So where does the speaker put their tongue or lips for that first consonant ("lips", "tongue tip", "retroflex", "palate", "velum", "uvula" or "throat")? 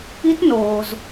tongue tip